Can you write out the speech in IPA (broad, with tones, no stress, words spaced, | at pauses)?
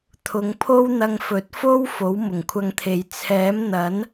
t̪ʰʊ˨˧ŋpʰo˥wn̪ɐ˧ŋfɵ˨˥t̚ fo˥w fo˨˥wmʊ˨˩ŋkʷʰɐ˧ŋt̪ʰe˨j t͡sʰɛː˨˥mn̪ɐ˨˥n